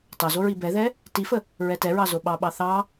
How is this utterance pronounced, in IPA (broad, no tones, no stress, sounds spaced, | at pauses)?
t ɑ z o ɹ i b ɛ ð ɛ | t i f ə | ɹ ɛ t ɛ ɹ ɑ z o ɓ ɑ ɓ ɑ θ ɑ